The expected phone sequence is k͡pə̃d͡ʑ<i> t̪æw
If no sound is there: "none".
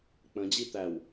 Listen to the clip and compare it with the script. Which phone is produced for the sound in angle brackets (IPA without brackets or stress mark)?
i